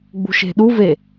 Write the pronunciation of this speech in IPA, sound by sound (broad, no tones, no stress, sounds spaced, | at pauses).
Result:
ɡ͡b ṳ ʃ e̤ ɗ u v e